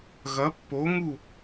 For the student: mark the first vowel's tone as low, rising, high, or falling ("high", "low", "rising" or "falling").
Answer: rising